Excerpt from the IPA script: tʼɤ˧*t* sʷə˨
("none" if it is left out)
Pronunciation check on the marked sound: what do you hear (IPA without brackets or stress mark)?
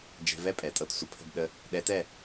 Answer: t